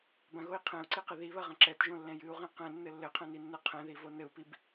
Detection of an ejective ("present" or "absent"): absent